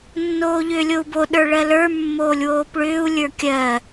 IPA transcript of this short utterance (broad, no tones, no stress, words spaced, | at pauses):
nːoːʎʏːlʲou̯bo ɗə˞ɭɜlə˞ mːoːlʲwoːpɭʏːu̯ lʲə˞kʲɜ